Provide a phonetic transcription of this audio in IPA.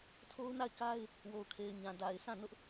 tʰ o˦ ʊ̯ n a˦˨ ɪ̯ k a˦ ɪ̯ | w o˨ ʊ̯ kʰ e˨ ɪ̯ ɲ ã˨ d a˨ ɪ̯ s ã˦˨ n ʊ˦ ʔ

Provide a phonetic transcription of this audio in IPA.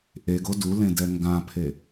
ʔ e ɡ o d u l ẽ d ɛ ŋ ɡ ã pʰ e

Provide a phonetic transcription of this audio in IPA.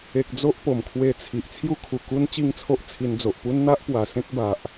e˨ k̚ d͡z o˦ ʔ p o˨˩ m kʰ w e˧ t͡sʰ i˨ ʔ t͡sʰ j u˧ kʰ u˨˩ k u˧ n t͡ɕ i˥˧ ŋ t͡sʰ o˦ ʔ t͡sʰ i˧ n d͡z o˨ ʔ p u˦ n n̪ a˦ ʔ p w a˨˩ s ẽ˦ k̚ b a˨ ʔ

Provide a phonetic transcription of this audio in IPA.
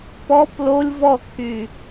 p ɔ p l o lʲ v ɔ kʰ y

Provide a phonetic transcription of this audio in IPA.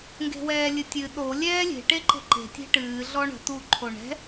ŋ ɡ e̤ w ɛː lʲ ɨ tʲ ɨ ɗ o lʲ ɛː lʲ e̤ ʈ e ǃ e̤ ǃ e̤ tʲ e̤ ʈ ɨː ɮ ɔ ɳ ə̤ t u ǃʰ o ɳ ɛ̤

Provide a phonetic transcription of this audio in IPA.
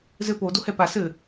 z ɘ p o d o h ɛ p a s ɘ

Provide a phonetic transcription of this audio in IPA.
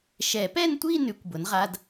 ʃ ɛ˨˩˦ p ɛ˥˧ n tʷ i˥˧ n ʉ˩˥ kʷ b ʊ˩˥ n ʁ a˧˥˧ d

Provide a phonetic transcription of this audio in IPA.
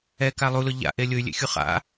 ɛ k a lˠ u l ʊ ʎ a̰ ʔ e lʲ ʊ y̯ lʲ ḛ xʲ u χ a̰

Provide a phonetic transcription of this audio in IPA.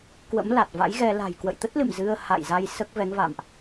k w ə̰˧˥ m l a˨˩ t̚ v a̰˧˥ j ɣ ɛ˧ l a̤˨˩ j k w ə̰˧˨ j t̪ ə˦˥ t̚ l ɨ̰˧˨ m z ɨ˧ ə̯ h a̰˧˨ j z a˧ j s əː˦˥ k̚ v ɛ˨˦ ŋ v a̰ː˧˨ m ʔ

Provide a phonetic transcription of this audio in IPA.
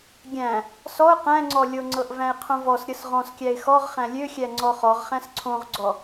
ɡʲ æ̃ | s ɔ ʊ̯ q æ̃ ŋ͡ǀ ɔ lʲ o ŋ͡ǀ ɤ ʔ v æ̃ ɪ̯ qʰ õ v ɔ s ɾʲ ɤ s ʁ ɔ̃ s kʲ æ ɪ̯ x ɔ ʁ χ æ̃ lʲ ø xʲ æ ŋ͡ǀ ɔ χ ɔ ʁ χ æ̃ s ǀʰ õ ʁ ɡ͡ǀ ɔ

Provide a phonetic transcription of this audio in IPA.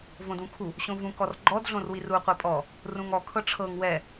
v õ d ũ kʰ u | ɕ õ v ũ k ɔ r ɡ͡ǃ ɔ d ɮ õ r w i r u qʷ ɛ pʼ ɔ | r ũ ŋ ɔ kʰ ɤ ʈ͡ʂʰ ɤ ŋ w ɛ

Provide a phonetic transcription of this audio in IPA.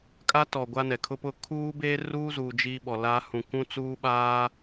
kʼ a˦ t ɔ˨ ɡʷ a˦ n ɛ˨ kʰ ʊ˦ p ʊ˦ kʰ uː˦ b eː˦ r uː˦ z uː˨ d͡ʒ iː˦ ɓ ɔ˨ l a˦ h ũ˨ k ũ˦ t͡s uː˦ ɓ aː˦

